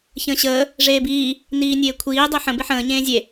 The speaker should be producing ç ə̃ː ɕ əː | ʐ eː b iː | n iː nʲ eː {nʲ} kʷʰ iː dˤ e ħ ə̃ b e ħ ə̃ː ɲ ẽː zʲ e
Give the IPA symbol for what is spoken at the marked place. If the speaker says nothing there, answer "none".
none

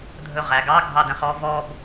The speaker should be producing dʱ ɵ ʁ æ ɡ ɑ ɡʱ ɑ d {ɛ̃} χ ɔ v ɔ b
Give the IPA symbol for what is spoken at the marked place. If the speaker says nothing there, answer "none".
ɛ̃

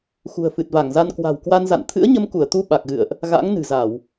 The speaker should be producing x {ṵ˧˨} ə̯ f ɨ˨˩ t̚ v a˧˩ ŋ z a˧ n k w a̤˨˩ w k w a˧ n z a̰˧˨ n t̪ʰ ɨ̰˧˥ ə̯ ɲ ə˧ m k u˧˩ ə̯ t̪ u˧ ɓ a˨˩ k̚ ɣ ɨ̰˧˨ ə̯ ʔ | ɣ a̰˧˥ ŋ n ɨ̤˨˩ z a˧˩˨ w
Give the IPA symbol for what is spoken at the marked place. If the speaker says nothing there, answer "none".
ṳ˨˩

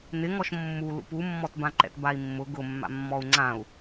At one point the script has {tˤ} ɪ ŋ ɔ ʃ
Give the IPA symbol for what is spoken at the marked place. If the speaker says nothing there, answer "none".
n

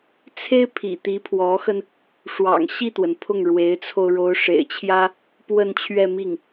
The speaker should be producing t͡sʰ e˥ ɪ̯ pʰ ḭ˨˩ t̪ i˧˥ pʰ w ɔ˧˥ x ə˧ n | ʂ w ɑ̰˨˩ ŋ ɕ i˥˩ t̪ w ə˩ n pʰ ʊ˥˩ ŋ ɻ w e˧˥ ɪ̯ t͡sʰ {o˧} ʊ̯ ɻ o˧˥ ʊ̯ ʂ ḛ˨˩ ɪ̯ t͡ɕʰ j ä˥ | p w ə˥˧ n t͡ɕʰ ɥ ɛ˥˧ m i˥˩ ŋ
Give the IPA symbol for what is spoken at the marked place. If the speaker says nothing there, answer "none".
o˧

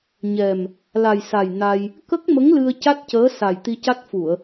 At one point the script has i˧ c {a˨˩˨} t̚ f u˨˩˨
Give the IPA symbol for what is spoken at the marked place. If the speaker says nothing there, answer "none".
a˦˥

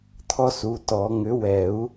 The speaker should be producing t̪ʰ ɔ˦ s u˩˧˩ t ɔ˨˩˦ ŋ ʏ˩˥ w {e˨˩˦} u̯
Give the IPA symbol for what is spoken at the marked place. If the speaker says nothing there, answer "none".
ɛ˨˩˦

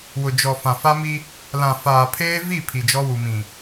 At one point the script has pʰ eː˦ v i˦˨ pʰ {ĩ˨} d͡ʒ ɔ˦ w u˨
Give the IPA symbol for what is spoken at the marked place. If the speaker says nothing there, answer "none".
i˨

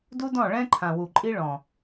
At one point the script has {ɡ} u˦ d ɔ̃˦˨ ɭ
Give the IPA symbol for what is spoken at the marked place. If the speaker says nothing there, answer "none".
d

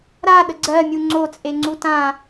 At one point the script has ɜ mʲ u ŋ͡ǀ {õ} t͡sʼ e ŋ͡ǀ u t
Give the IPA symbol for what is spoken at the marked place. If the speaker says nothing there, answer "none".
o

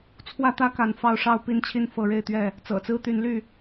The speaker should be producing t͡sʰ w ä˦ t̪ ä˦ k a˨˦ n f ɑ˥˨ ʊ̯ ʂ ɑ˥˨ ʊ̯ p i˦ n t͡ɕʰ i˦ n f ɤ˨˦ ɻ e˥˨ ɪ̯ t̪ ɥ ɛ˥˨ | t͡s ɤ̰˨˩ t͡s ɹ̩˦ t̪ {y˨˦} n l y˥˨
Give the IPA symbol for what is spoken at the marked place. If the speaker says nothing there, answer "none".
y˨˦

